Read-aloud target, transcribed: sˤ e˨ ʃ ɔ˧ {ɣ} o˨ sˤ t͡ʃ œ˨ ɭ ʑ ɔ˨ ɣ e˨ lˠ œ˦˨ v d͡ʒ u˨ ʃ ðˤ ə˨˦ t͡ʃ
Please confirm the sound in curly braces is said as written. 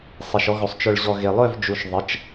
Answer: yes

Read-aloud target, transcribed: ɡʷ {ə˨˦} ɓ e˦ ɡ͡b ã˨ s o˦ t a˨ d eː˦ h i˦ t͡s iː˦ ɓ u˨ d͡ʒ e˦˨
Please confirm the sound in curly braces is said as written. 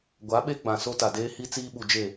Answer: no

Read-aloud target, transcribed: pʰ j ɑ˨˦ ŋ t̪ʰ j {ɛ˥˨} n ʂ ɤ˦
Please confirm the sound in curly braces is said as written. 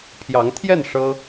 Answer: yes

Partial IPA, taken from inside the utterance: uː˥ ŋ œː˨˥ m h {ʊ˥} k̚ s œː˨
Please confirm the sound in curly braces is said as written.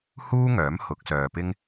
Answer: no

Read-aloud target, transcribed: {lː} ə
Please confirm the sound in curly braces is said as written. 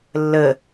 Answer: yes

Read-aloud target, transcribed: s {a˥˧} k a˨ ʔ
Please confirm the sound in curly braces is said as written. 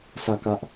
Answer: no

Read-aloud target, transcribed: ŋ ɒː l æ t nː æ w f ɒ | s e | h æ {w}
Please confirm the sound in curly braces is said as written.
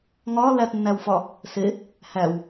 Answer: yes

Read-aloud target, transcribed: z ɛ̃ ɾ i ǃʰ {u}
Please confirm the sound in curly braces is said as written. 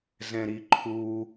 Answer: yes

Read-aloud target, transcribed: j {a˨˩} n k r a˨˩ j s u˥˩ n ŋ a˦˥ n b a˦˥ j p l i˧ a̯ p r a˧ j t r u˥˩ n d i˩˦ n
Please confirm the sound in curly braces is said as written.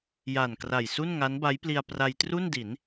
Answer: yes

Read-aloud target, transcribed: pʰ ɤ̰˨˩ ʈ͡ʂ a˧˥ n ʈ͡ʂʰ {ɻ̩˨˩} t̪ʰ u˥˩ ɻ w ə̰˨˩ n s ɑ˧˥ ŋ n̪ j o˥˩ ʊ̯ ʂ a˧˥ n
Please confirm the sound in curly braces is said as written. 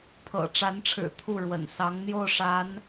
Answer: yes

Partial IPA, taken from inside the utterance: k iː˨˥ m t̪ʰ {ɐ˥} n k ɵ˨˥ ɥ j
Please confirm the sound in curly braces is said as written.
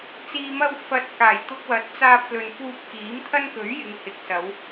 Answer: yes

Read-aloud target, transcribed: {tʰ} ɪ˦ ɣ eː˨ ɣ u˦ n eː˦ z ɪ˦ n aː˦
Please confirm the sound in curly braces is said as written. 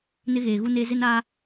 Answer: no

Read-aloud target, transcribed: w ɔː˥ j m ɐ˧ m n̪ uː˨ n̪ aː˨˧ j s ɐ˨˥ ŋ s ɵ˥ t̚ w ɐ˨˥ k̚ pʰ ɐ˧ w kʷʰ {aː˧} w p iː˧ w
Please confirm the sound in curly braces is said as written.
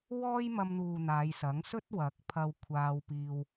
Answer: yes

